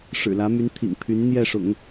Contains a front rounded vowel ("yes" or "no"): yes